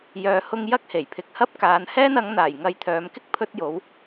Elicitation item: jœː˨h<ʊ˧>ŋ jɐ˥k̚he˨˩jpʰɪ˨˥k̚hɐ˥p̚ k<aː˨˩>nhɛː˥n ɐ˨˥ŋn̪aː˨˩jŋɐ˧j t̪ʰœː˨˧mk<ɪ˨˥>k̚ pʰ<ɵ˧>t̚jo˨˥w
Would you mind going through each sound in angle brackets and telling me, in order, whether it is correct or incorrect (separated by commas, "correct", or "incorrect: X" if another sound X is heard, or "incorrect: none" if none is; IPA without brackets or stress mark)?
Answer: correct, incorrect: aː˨˧, incorrect: ɪ˥, incorrect: ɵ˥